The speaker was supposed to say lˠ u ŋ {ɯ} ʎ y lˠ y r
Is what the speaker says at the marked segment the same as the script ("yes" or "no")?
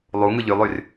yes